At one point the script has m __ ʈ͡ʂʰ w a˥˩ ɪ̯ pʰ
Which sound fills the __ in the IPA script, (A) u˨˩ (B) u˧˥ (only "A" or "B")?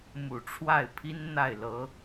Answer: A